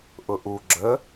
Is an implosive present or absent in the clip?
absent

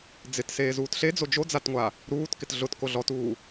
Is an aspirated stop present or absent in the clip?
absent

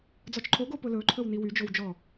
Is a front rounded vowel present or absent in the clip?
present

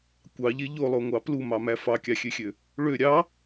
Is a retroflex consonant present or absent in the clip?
present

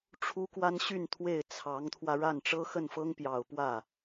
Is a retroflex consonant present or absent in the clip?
present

